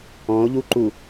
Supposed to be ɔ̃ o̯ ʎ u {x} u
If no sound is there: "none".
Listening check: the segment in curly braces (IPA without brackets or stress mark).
ǃ